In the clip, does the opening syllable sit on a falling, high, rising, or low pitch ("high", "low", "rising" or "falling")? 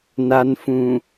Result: low